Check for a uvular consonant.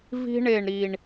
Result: absent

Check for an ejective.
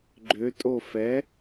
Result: present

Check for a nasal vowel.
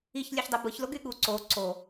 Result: absent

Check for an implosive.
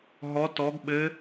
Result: present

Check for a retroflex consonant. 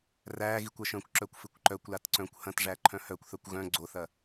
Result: present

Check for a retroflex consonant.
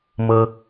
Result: absent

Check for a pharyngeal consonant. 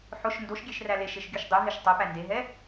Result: present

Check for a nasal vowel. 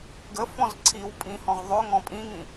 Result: present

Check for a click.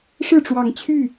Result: absent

